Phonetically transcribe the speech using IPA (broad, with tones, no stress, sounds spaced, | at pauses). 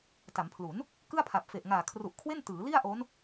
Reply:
t a˩˦ m pʰ l u˩˦ n | k ɯ˥˩ a̯ pʰ a˨˩ p̚ f e˨˩ ʔ ŋ aː˨˩ kʰ r u˨˩ ʔ kʰ w e˥˩ n t ɯː˩˦ l i˥˩ a̯ ʔ o˦˥ n